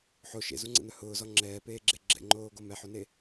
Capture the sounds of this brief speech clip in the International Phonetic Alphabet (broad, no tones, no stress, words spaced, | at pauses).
ħo ʃḛzuŋ͡ǀɛ̰n̪œ hʊːzɔ ŋ͡ǁɛːpeːɡ͡ǁe ɡ͡ǁɛ̰ŋ͡ǃoːɡo mɛħone